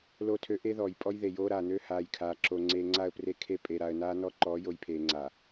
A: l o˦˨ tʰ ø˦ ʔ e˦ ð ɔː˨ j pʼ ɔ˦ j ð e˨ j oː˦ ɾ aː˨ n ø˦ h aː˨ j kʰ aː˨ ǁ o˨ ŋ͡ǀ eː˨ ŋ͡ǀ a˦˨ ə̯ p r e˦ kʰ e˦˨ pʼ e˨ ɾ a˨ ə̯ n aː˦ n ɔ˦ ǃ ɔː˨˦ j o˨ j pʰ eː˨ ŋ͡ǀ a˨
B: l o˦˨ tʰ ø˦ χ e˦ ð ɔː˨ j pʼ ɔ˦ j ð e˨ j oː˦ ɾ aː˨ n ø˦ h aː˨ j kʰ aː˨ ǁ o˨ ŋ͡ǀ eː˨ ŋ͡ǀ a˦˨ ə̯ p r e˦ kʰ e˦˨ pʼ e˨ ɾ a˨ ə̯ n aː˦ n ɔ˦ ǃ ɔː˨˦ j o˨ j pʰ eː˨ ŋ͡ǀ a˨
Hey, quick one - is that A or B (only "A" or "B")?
A